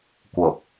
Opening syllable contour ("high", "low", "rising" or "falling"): low